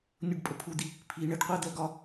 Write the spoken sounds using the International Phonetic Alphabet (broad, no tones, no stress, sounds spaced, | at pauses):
nʲ u ɖ pʼ ə pʰ u d̪ i | pʰ i ɳ ə ɖ qʷ ɜ d̪ ɜ ɡ ɒ